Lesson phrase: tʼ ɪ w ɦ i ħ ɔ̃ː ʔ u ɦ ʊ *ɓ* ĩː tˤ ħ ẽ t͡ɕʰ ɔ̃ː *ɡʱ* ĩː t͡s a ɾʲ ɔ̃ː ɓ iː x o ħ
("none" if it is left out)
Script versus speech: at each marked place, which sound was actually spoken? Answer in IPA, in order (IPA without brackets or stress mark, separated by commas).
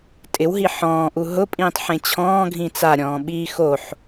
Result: pʼ, ɡʱ